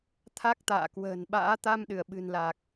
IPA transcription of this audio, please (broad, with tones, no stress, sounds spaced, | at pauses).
t̪ʰ a˦˥ k̚ t̪ a̰ː˧˨ k w ə̤ː˨˩ n ɓ a̰ː˧˥ t̪ a˧ m ɗ ɨ˧˩ ə̯ ɓ ɨ̤˨˩ n l a˨˩ k̚